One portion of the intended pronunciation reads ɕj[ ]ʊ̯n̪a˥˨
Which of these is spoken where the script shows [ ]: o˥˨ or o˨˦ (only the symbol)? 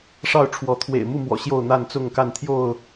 o˥˨